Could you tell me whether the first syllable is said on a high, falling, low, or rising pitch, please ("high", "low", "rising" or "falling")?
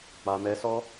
low